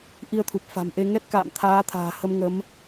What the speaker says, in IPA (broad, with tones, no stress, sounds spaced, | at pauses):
ʔ i˧ ə̯ t̪ʰ u˨˩ p̚ f a̤˨˩ m ʔ e˧ ŋ ɛ˦˥ t̚ k a̰ː˧˨ m t̪ʰ aː˨˦ t̪ʰ a̤ː˨˩ h ə˧ m ŋ ə˨˦ m